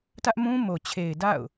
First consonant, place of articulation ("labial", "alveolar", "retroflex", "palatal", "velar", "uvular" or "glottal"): alveolar